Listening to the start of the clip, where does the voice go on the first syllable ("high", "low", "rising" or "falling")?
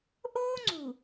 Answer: high